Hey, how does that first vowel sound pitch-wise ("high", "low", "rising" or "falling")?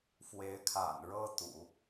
rising